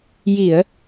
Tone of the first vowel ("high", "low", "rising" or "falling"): low